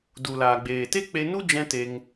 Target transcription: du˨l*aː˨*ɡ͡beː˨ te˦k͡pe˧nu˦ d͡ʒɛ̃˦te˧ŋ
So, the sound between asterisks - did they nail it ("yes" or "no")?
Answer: yes